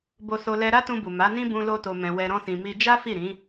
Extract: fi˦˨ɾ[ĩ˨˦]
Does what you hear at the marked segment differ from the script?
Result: no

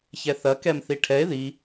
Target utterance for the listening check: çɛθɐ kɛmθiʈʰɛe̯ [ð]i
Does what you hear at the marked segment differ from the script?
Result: no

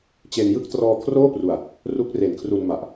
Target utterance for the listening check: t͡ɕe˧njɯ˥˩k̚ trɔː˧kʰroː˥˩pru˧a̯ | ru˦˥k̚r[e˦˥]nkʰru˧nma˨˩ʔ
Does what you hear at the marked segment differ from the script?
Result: yes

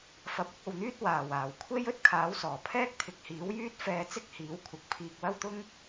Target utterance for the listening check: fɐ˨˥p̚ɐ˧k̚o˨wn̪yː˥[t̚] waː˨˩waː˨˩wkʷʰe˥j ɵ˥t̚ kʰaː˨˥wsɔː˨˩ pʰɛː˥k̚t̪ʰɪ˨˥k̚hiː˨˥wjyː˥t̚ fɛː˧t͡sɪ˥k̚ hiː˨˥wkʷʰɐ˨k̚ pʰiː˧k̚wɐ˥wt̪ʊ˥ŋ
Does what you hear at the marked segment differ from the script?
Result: no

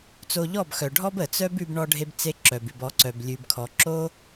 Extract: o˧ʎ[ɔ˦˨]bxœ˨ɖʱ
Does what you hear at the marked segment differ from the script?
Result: no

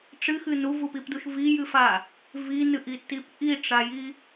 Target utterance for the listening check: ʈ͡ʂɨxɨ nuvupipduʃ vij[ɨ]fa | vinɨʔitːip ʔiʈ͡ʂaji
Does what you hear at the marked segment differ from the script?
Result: no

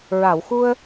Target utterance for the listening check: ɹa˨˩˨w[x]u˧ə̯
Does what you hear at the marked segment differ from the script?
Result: no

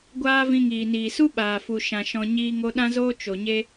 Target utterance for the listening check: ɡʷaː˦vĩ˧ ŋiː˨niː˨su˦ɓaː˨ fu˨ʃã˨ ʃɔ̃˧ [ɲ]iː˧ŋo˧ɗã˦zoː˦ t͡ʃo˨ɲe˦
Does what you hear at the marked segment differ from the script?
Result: no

